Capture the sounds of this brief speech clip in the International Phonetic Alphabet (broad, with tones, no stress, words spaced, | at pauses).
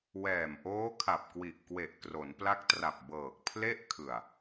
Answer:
wɛː˨˩mʔoː˦˥kʰa˨˩p̚kwi˨˩ʔ kwe˨˩ʔ kro˩˦npla˦˥k̚tra˨˩p̚ bɤː˨˩k̚ pʰle˥˩ʔkʰɯ˨˩a̯